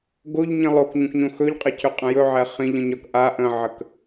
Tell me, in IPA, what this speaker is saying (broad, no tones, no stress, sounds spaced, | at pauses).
ɡ o ʎ ɲ ĩ lˠ o k ɲ õ k ɲ õ x ɵ ʎ qʼ ɛ cʰ ɵ qʼ ə̃ j ɵ ʕ ɛ χ ĩ ʎ ə̃ ɲ ɒ k ʔ a ʔ ə̃ ʕ ə k